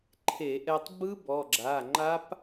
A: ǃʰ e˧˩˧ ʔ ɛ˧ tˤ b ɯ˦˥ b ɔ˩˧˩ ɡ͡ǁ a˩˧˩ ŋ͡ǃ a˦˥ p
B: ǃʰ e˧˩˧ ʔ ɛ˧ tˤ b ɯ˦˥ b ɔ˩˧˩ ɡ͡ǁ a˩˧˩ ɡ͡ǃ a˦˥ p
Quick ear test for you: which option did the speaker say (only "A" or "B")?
A